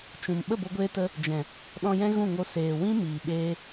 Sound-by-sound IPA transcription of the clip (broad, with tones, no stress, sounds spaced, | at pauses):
t͡ʃ ũ˨ m ɓ ə˦˨ b o˧ ɡʷ eː˧ t ə˧ | d͡ʒ ɛ̃˨ | ɗ ɔ̃˧ j ɛ̃˦ ɣ ũ˦˨ ŋ o˧ s eː˨ w ĩ˦ m iː˨ ɓ eː˦